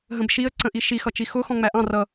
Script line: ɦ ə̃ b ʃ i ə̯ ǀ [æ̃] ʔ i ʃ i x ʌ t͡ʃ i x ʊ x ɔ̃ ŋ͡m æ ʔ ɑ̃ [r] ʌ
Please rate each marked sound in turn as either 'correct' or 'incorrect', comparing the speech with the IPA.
incorrect, correct

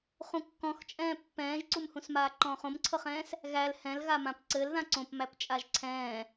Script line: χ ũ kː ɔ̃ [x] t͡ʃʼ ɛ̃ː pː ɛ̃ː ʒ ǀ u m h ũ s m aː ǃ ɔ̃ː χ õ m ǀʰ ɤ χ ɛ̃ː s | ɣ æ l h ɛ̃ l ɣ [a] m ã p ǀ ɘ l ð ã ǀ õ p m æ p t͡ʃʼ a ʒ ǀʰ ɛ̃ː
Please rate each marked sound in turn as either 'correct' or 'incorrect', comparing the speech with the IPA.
correct, correct

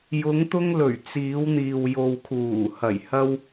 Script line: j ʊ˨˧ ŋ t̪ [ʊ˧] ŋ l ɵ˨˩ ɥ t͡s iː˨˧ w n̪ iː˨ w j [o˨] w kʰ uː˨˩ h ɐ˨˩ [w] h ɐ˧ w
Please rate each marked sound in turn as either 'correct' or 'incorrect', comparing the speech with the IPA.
correct, correct, incorrect

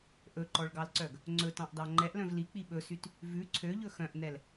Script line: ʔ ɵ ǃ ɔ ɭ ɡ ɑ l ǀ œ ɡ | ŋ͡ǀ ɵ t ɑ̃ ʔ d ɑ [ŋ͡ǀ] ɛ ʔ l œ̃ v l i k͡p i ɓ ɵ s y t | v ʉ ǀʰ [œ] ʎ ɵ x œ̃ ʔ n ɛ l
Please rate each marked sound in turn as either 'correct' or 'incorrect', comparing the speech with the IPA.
incorrect, incorrect

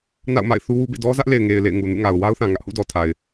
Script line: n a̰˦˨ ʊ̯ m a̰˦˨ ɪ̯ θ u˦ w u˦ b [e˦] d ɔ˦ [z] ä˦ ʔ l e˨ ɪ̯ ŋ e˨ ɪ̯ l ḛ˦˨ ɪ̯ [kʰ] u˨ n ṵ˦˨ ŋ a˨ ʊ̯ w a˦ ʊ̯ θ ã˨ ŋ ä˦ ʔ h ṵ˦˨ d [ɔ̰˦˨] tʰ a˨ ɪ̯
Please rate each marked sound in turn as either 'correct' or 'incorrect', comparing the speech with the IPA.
incorrect, correct, incorrect, incorrect

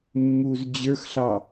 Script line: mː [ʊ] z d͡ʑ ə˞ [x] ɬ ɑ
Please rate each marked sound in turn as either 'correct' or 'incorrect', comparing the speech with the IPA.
incorrect, correct

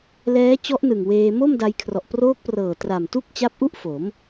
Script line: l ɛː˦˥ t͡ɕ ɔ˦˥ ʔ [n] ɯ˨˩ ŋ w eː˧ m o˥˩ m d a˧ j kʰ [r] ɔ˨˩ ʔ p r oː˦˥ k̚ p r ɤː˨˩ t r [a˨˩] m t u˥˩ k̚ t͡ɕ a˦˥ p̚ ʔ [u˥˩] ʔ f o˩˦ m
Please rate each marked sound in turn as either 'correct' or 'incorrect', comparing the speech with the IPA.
correct, correct, correct, correct

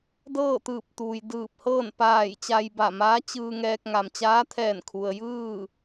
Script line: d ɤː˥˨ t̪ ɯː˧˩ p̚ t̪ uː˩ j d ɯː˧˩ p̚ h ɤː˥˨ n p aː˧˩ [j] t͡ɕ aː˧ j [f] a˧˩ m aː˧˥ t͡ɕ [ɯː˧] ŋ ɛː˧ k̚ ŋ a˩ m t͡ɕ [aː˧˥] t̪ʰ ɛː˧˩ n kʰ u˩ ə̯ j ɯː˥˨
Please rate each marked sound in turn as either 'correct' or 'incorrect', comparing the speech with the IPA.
correct, incorrect, correct, correct

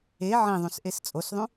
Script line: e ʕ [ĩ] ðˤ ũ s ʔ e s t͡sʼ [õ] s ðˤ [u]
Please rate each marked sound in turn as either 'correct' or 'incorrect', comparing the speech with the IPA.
correct, incorrect, incorrect

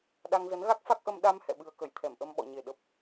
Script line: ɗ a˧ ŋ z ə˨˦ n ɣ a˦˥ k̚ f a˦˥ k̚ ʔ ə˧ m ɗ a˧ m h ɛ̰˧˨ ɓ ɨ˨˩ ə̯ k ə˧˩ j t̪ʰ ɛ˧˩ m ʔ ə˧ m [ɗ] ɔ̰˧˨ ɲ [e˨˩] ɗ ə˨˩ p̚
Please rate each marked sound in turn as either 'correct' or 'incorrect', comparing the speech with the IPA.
incorrect, correct

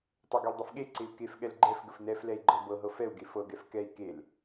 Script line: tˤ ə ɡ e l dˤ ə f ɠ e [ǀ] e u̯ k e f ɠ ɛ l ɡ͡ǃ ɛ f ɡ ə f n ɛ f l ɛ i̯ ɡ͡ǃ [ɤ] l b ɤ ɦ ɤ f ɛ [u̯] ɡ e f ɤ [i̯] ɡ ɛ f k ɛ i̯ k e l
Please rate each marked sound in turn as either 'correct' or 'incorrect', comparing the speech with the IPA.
correct, correct, correct, incorrect

